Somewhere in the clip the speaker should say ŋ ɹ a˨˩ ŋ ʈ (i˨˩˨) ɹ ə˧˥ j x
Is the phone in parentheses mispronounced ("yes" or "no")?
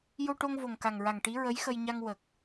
yes